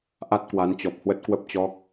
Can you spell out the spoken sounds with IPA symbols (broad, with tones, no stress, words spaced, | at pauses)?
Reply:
ʔa˦˥t̚kwa˨˦nt͡ɕɔ˨˩p̚ hwə˦˥t̚kwə˦˥p̚t͡ɕɔ˦˥k̚